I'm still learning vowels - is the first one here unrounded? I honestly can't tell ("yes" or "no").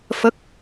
yes